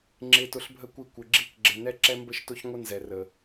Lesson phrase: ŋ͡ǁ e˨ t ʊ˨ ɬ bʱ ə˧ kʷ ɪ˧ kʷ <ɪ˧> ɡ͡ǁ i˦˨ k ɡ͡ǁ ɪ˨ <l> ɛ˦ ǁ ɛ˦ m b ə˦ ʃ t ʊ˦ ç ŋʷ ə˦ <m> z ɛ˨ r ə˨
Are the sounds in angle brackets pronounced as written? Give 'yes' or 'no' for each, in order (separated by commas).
no, no, no